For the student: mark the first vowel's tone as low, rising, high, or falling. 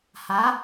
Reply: rising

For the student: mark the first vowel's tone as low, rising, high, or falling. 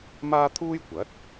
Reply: high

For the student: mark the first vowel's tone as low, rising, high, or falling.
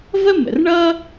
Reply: high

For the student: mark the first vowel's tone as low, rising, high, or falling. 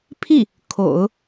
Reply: falling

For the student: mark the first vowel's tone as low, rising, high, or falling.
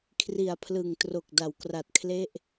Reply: low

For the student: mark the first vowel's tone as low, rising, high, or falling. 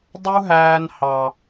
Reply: high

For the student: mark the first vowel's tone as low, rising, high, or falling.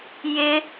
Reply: high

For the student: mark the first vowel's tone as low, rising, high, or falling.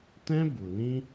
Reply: high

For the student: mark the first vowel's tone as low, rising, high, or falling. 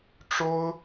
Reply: high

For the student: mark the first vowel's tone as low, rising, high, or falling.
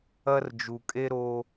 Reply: high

